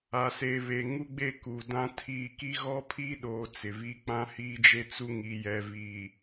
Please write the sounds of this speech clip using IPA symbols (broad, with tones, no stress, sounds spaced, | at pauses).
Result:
a˨ s e˨ β e˨ ŋ u˦ ɡ͡b e˦ k u˨ d ã˦ tʰ iː˦˨ k i˦ ɣ ɔ˦ pʰ i˦ ɗ oː˨ t͡s ɪ˨ v i˦ k͡p ã˦ h iː˦ d͡ʒ e˦ t͡s u˦ ŋ i˨ j ɛ˨ v iː˨